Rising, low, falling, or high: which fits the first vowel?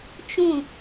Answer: falling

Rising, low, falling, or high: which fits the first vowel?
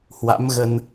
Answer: rising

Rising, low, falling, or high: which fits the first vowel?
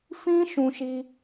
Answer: high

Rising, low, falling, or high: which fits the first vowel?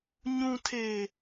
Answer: low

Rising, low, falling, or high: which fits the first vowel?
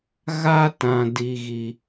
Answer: high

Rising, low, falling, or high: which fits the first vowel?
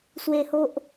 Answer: high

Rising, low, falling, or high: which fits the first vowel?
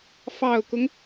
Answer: low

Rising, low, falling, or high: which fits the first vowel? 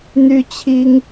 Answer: high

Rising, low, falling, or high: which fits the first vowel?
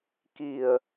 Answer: low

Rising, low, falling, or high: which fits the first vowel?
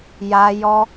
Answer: high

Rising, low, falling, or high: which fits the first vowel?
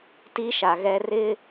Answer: high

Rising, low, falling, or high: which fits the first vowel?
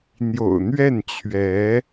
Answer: low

